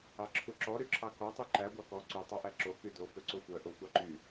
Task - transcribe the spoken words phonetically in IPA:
ɑ ǁʰ u ǁ ɔ ɾ y ǁʰ ɑ k ɔ tˤ u ǃ æ ɡʷ ɑ k ɔ ǀ y tˤ ɑ ʔ æ ǁ o k y d o f ø ǀ o xʷ œ ʔ o xʷ ɑ ǃ y

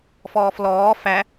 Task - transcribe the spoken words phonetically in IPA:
f ɔː f l ɔː f æ

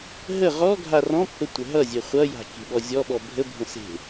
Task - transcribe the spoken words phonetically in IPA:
ɦ ə ʁ ɔ ɡʱ a r ɔ̃ pː ə tʷ ə ɦ ʌ zʲ e χʷ ʌ j a̤ kʲ e̤ ɓ ɔ zʲ ɔ ɓ ɔ bʱ ə bʱ ə̃ s e̤

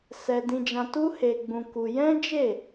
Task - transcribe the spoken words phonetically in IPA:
s ɛ˧ d ĩ˧ d͡ʒ ã˧ t u˦ h e˧ ɡ͡b ũ˧ k u˧ j ɛ̃˦ d͡ʒ e˦˨

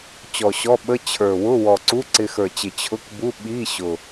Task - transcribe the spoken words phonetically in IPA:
t͡ɕ ɔ˨˩ ɕ ɔ˧˥˧ ɓ ə˧˥˧ t͡ɕʰ ə˞˨˩ w ʊ˧˥˧ w ɔ˨˩ ǀ u˧˥˧ ǀ ɪ˧ x ə˞˨˩ t͡ɕ ɪ˨˩ t͡ɕʰ ʊ˧˥˧ k b u˧˥˧ ɓ i˧˥˧ ɕ ʊ˨˩

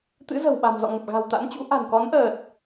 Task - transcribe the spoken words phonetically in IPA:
t̪ ɨ̰˧˥ z ə̤˨˩ w ɓ a̤˨˩ m z ɔ̰˧˨ ŋ ə˨˩ p̚ ɣ a̤˨˩ w t̪ a̰˧˥ n t͡ɕ ṵ˧˥ ʔ a̤˨˩ n k ɔ˨˦ n ʔ əː˨˩ t̚

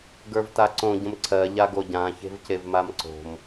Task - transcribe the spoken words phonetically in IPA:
ɡ ə˞ v t a ǀ õ ɟ ə̃ m ǀʰ ɜ ʎ a ɡ o ɟ ã ç e̤ v c e v m a m ǀ o̤ m

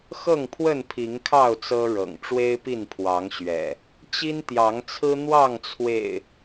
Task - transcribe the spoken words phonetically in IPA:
x ɤ˥˨ ŋ pʰ w ə˥˨ n pʰ i˨˦ ŋ kʰ ɑ˥˨ ʊ̯ t͡s ɤ˦ ɻ ɤ̰˨˩ ŋ ʈ͡ʂ w e˦ ɪ̯ p i˥˨ n pʰ w ɑ˨˦ ŋ ɕ ɥ ɛ̰˨˩ | t͡ɕ i˦ n t̪ j ɑ˨˦ ŋ t͡sʰ ɹ̩˦ n̪ w ɑ˥˨ ŋ t͡sʰ w ḛ˨˩ ɪ̯

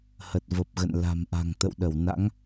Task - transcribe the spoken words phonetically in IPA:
h ə˨˩ t̚ v ə˨˩ p̚ ɣ ə̰˧˨ n l a̤˨˩ m ʔ a̤˨˩ ŋ t̪ ə̰˧˨ w ɗ ə˧˩ w n a̰˧˥ ŋ

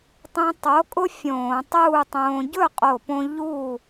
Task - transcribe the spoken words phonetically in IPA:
tˤ ũ˧ tˤ o˨˥ kʼ ʊ˥ fʲ õː˧˩˧ tˤ uː˥˨ tˤ õː˧ ɟ ɵ˥˨ qʼ o˧˩ p õ˧ ʎ uː˥˨

